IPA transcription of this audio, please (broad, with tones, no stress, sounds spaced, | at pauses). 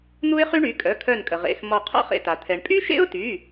n̪ u˥ ɪ̯ χ y˥ ɳ y˩˧˩ kʼ œ˩˧˩ kʰ œ˧˩ n kʼ ə˩ ʁ ḛ˩˧˩ x m ɔ˧˩ qʰ ɔ̰˥ χ ḛ˧˩ t a˩ t̪ʰ ɛ˩ ɳ pʼ y˥ ʃ ḛ˥ ʊ̯ t y˩˧˩